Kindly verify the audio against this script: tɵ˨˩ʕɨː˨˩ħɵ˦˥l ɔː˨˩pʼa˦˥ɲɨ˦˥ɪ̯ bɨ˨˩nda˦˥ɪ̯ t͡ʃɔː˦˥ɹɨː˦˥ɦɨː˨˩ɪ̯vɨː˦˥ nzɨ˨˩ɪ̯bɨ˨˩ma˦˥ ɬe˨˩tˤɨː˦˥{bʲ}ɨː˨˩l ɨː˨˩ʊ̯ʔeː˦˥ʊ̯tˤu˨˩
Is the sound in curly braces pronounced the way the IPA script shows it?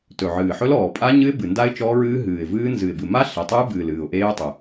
no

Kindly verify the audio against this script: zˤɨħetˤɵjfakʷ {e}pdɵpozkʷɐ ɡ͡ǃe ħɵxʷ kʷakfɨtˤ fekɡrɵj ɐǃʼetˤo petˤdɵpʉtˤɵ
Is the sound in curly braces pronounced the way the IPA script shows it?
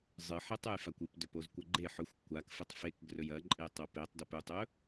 no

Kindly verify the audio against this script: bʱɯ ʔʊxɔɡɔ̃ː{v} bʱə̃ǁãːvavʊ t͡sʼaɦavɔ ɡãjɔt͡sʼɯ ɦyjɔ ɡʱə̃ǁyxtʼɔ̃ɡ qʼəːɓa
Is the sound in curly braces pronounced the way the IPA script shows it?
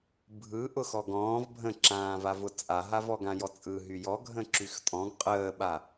yes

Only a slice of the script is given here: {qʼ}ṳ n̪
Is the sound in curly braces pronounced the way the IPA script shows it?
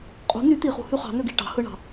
yes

